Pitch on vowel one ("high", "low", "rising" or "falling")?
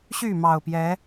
falling